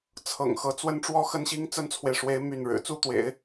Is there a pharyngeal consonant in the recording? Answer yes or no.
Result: no